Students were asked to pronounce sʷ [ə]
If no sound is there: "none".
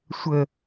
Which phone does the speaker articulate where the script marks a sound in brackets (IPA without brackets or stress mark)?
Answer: ə